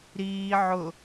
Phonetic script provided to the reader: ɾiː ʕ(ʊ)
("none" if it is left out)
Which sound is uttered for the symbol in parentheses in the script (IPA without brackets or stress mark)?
ʊ